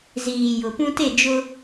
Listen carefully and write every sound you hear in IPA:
z iː˨ j ʊ˨ p ũ˦ t e˦˨ d͡ʒ ʊ˦

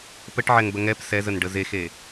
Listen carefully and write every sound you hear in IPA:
p ə ʈ ʕ ɛ ŋ b ə ŋ ɛ p s ɛ z ə n ɖ ə z e x e

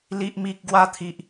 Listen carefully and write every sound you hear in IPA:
l i˨ ʔ m i˨ k̚ ɡ w a˧ t̪ʰ i˨ ʔ

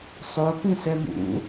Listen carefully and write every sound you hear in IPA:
sˤ o p ĩ s ɛ m ṵ

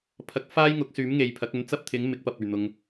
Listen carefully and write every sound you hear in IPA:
pʰ ɐ˨˥ k̚ f aː˥ j ŋ ʊ˨˥ k̚ s yː˨˥ m ŋ e˨ j pʰ ɐ˨˥ k̚ ɵ˨˥ n t͡s ɐ˥ p̚ t̪ʰ ɪ˨˥ ŋ m ɪ˨˥ k̚ p ɐ˨ p̚ ɵ˨˩ ɥ n̪ ʊ˨ ŋ

